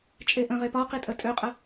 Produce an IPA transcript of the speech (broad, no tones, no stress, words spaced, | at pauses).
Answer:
t͡ʃʼeʔə̃ʁe pɒ qitʼətʼøqʼə